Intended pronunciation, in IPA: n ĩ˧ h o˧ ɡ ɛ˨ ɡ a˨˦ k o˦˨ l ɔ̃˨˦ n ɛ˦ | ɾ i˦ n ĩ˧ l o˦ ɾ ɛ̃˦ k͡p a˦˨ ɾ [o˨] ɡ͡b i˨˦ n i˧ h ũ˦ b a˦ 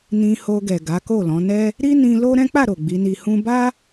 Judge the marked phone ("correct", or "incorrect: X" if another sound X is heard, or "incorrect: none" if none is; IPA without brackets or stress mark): correct